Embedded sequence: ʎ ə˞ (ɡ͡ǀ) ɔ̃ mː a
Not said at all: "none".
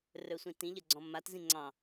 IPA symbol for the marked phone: ɡ͡ǀ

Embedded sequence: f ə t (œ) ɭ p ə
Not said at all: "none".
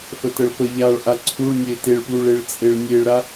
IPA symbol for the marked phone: ə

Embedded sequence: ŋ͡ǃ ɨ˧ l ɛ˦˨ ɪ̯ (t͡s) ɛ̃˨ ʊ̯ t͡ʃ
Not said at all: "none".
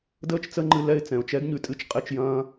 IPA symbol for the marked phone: t͡s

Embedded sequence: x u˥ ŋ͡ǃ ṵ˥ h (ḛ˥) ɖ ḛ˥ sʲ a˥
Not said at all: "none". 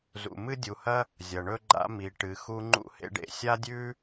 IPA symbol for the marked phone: ḛ˥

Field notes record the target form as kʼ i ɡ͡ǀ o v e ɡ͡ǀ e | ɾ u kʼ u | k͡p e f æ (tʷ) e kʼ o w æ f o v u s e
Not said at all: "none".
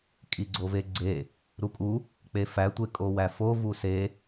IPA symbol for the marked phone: tʷ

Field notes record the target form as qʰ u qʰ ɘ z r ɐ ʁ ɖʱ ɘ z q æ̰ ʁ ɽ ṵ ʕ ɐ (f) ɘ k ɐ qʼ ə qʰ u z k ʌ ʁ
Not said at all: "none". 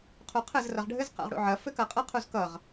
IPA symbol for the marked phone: f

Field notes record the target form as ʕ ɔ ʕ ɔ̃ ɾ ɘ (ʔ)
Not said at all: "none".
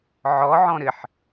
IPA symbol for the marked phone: ħ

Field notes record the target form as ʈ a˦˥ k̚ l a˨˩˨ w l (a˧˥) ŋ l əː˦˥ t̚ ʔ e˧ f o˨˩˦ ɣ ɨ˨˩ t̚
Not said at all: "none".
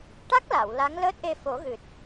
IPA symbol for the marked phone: a˧˥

